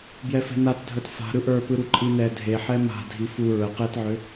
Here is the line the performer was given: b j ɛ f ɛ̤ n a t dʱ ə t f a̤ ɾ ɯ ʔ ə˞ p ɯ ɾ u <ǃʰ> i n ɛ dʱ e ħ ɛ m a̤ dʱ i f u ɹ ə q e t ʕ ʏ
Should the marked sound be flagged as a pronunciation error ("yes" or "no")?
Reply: yes